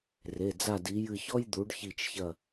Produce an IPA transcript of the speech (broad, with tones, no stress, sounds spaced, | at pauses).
r e˩˧˩ d͡z a˦˨ d i˨˦ j ɨ˦˨ ç ɔ˥ j d̪ u˨˦ ɖ ç i˦˨ t͡ʃ ç ɐ˦˨